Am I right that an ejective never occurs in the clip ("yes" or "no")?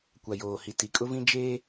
no